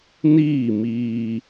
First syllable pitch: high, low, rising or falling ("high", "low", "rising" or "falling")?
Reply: falling